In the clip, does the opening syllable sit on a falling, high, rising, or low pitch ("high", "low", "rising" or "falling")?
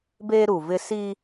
high